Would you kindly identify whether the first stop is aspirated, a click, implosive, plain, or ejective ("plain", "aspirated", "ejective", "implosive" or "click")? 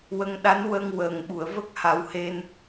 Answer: implosive